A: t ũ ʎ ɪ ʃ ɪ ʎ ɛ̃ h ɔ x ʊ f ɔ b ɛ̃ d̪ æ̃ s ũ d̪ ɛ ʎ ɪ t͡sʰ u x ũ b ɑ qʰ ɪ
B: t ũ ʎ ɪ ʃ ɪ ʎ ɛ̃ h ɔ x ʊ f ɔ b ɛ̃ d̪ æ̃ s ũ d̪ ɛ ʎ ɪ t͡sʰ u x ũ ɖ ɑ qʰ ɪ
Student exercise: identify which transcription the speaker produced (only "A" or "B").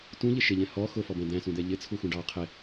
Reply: B